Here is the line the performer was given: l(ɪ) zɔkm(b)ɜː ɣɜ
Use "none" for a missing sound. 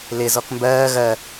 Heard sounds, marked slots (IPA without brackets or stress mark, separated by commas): ɪ, b